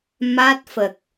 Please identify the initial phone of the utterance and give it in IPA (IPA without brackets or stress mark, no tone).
m